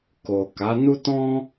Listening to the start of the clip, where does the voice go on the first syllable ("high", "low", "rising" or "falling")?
low